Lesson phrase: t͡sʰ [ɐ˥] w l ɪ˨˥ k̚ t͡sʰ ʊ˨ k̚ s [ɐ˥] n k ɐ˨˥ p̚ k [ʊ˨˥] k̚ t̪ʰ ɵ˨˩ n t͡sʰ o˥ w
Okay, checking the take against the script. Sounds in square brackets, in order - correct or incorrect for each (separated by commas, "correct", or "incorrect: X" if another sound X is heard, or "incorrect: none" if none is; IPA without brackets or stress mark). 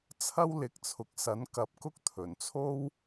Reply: correct, incorrect: ɐ˨˥, incorrect: ʊ˥